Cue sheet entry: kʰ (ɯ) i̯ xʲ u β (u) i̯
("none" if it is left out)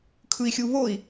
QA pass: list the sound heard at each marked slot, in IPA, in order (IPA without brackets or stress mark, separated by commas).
ɯ, o